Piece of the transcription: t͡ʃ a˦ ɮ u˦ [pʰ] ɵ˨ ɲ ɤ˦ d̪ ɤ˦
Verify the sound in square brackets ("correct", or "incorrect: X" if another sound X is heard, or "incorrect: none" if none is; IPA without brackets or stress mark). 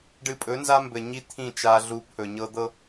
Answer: correct